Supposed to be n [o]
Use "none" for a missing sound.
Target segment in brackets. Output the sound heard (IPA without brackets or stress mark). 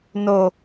o